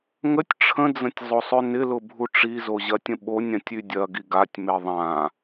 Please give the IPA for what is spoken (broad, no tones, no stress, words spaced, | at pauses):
ŋətʲ ʈ͡ʂʰə̃d͡zə̃tʲ zˤosˤønɪlʊ bʱuʈ͡ʂizo ʑɐtʲə̃ɓonʲãtʲ ydʲɐɡi ɡatʲme ðˤã